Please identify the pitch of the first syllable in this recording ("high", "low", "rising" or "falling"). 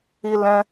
high